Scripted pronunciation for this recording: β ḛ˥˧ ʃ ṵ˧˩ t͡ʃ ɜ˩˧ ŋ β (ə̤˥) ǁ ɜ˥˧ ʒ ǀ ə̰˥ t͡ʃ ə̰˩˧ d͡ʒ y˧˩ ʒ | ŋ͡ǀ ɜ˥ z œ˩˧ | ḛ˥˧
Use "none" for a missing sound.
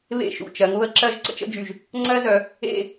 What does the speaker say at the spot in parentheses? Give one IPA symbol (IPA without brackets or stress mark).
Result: ə˥